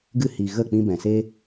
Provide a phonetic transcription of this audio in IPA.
ɡ ɨ˧ h i˨ ɣ ə˦˨ k͡p ĩ˧ b ɛ̃˨ s e˦

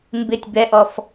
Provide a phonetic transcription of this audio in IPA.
m b ɪ tʲ b ɛ ʔ ɔ f

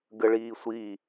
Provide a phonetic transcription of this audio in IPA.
ɡ ə ɭ iː sʷ i

